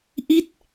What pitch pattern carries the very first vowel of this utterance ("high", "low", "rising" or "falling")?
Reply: falling